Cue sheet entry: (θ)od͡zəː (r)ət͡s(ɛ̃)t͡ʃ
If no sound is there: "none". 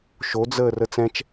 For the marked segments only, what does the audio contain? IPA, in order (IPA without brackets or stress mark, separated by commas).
ʃ, r, ɛ̃